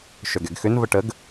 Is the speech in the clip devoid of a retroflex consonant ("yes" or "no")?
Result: no